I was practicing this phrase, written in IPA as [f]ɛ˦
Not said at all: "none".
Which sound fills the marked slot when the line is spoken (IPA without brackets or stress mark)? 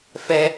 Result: f